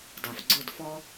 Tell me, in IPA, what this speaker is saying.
d a˨ f ɡ͡ǀ ʊ˦˨ d f ɔ˦

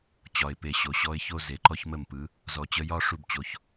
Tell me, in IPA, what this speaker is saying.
t͡ɕ ɒ˨ ɪ̯ p e˨ ɕ o˨ ɕ ɔ˧ ɪ̯ ç o˦ z e˨˦ ǃ ɔ˦ ç m ə˦˨ m p ɯ˨˦ | z ɔ˨ t͡ɕ ə˧ j ɒ˦ ʂ u˦ b t͡ɕ o˨˦ ç

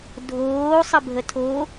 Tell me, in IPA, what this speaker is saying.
dʱ oː sˤ ə bʱ ə tʰ o

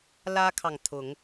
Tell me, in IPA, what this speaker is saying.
l ä˦ kʰ ɑ˨ ŋ t̪ʰ ʊ˨˦ ŋ

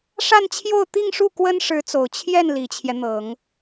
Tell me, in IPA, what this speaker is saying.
ʂ a˥˧ n t͡ɕʰ j o˥˧ ʊ̯ t̪ i˥˧ ŋ ʂ u˥˩ k w ə˥ n ʂ ɻ̩˧˥ t͡s o˨˩ ʊ̯ t͡ɕʰ j ɛ˥˩ n l i˨˩ t͡ɕʰ j ɛ˦ n̪ ɤ˨˩˦ ŋ

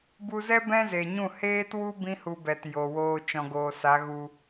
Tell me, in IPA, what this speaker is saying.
b u˧ z ɛ˦ b ɛ̃˦ z e˨ ɲ ũ˦˨ h eː˦ t w u˦ b ĩ˦ h u˧ b ɛ˨ t j o˨ w oː˧ t͡ʃ ɔ̃˨ ɡ oː˨ s a˨˦ ɣ u˧

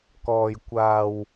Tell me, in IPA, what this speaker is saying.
k ɔː˨˩ j kʷ aː˨˩ w

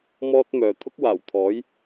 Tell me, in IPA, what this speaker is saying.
m ɔː˥ t̚ m œː˨ t̪ʰ ʊ˥ k̚ w aː˨˩ w t̪ʰ ɔː˨˥ j

